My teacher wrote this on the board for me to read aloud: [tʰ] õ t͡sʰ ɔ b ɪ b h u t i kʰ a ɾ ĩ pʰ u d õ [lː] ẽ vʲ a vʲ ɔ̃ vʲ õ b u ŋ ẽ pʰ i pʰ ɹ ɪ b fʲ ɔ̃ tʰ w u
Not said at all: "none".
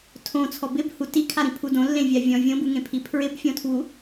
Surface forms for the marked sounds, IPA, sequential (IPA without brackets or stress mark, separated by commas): tʰ, lː